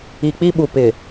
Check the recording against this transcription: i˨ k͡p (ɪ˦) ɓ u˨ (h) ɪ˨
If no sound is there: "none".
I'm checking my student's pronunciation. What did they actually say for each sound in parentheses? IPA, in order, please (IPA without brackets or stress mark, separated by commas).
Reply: i˦, p